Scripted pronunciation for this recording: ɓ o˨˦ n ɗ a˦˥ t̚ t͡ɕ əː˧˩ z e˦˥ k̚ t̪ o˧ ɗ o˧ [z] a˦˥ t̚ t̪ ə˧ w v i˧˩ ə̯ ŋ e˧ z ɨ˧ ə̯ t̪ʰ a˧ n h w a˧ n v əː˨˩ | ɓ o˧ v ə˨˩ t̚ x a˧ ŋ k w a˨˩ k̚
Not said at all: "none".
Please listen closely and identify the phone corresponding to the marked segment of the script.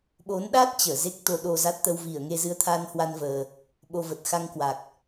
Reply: z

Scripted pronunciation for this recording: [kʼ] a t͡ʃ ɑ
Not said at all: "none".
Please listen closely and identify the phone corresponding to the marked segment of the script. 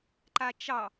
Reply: ǃ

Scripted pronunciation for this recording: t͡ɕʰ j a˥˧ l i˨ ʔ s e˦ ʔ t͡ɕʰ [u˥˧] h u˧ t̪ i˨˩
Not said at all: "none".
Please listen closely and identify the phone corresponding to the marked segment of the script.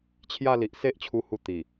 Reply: u˧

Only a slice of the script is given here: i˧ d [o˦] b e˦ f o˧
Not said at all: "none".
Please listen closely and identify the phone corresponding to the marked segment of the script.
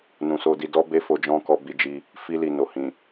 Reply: ɔ˦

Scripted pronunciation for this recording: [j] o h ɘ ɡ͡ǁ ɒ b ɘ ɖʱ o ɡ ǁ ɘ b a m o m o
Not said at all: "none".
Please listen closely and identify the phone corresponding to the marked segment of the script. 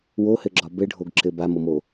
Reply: w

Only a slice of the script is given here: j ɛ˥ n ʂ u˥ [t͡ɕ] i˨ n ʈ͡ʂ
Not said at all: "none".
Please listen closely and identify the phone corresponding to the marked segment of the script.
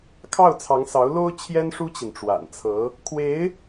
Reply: t͡ɕ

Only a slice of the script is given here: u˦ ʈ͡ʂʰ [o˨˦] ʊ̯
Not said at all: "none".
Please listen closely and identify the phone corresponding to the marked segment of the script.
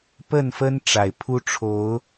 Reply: o˨˦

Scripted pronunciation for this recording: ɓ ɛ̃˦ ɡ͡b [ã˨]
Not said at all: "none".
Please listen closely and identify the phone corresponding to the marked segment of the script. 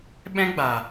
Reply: a˨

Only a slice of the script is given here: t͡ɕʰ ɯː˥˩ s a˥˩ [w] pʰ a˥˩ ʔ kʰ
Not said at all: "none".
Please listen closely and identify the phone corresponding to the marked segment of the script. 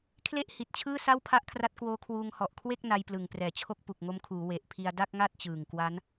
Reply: w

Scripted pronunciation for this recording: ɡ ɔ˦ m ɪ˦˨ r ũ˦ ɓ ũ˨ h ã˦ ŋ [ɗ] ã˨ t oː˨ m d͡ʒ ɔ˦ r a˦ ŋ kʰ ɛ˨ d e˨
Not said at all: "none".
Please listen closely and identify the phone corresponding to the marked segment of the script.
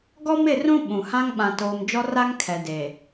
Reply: ɓ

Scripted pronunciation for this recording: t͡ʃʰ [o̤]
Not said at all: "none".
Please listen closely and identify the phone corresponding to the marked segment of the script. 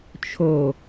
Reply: o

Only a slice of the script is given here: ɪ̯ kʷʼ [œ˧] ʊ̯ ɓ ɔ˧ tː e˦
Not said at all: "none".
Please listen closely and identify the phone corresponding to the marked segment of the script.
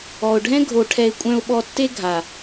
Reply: œ̃˧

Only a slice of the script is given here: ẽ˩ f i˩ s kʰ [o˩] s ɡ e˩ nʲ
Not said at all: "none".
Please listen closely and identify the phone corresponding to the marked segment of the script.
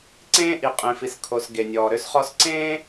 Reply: o˩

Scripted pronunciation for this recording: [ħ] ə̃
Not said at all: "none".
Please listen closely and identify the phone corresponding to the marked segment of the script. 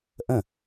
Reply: ʔ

